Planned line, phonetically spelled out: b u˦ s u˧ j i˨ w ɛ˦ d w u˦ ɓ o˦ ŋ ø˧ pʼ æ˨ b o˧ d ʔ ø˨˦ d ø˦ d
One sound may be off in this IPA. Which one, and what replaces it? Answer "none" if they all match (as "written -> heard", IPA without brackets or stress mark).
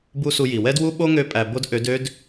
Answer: none